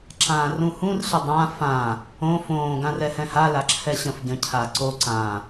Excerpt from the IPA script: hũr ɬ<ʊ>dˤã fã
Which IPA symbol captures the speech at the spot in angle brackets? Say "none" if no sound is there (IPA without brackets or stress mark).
ə